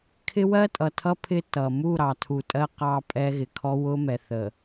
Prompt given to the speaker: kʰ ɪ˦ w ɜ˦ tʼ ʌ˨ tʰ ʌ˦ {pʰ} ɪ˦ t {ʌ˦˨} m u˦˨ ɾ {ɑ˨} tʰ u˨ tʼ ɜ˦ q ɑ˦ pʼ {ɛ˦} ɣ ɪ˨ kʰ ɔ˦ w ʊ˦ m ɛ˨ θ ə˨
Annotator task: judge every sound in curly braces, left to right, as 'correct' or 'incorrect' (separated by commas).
correct, incorrect, correct, correct